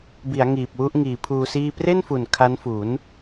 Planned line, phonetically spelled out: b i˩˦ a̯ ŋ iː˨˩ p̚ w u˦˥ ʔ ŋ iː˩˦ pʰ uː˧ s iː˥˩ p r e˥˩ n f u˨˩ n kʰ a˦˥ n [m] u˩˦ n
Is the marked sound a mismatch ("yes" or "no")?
yes